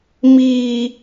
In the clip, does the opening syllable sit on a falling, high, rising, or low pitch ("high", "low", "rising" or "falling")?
high